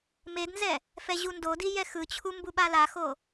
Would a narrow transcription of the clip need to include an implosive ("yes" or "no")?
yes